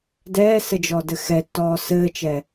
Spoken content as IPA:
dɛːsɘ d͡ʒɔdɘxɛtːɔː sɘːt͡ʃɛ

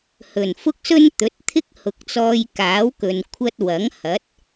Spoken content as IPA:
hɵ˨˩nfʊ˥k̚sɵ˥n t̪ɵ˨˥t̚ t̪ʰɪ˥k̚hʊ˨k̚t͡sɔː˧j kaː˨˥wkɵ˨n kʷʰɐ˥t̚ wɐ˨˥ŋhɐ˨˥t̚

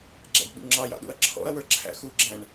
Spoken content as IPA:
ɡ͡ǁæ̰dɓṵŋ͡ǁɑjɑ̰ ɗṵɐ̯ǁʰɔ̰ɐ̯wə˞ ǁʰæ̰xuɡ͡ǁæ̃ɳ

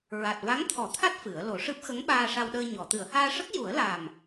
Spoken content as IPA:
ɹa˨˩t̚va˧˥ŋt̪ʰɔ˨˩˦t̪ʰa˦˥t̚ fɨ˨˩˦ə̯ lo˨˩˦ʂɨ˦˥p̚ xə˧˥ŋɓaː˧ʂa˧wɗəː˧ ɲɔ˨˩˨ t̪ɨ˨˩˨ə̯haː˧ʂə˦˥k̚ ju˨˩˦ə̯la˨˩m

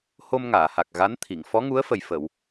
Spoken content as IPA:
ho˧mŋaː˨˩˨ha˨˩k̚ ɣa˧˥n t̪ʰi˨˩˨ŋ fɔ˧˥ŋu˧˥ə̯fə˨˩j fə˨˩˨w

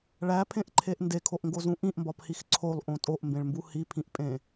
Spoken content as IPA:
ɭæpʰẽʔǃʰeʔ ndekʰoʔŋɡozũ ʔĩʔmbɒphix ǀʰolˠʔõ tʼoʔmbẽɭmbu hipʰĩʔpʼẽ

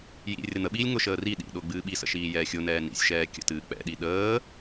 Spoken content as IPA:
jḭ rʲəɾɨn̪əɓiːlʲ ŋʊʃəː ri ɗḭ ɗʊːɡ͡bɨːɓisə̰ ʃiːjɛːxʲʊnɛː nḭsʲ ʃɛːkʲə̰tɨː k͡pɛ̰ɗi ɗəː

